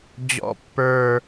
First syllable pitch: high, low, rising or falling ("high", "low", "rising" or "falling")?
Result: low